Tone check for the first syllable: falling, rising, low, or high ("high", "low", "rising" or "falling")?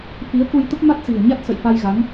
rising